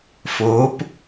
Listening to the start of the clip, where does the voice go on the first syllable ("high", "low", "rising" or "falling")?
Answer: rising